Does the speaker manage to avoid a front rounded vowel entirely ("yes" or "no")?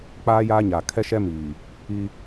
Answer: yes